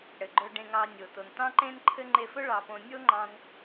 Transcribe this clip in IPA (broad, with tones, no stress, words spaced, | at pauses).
ɽɘ˩ɡ͡ǃɵ˧ ɖẽ˧ŋɑ˧ nʲo˩ to˩ntɑ̃˥ǃẽ˥n ǃʰɘ˥ ŋ͡ǃe˧fɵ˥ ɭɑ˧põ˧ nʲo˥ ŋ͡ǃɑ̃˧n